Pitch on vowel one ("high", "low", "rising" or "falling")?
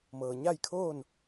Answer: low